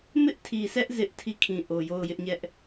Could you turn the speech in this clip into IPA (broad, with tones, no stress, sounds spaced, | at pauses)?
m ɪ˦ ʔ tʰ i˨ sʰ ɛ˦ ʔ z ɪ˦ ʔ tʰ i˦˨ kʰ ĩ˨ ʔ o˨ j o˦˨ ʊ̯ j ɪ˦ ʔ ɲ ɛ˦ ʔ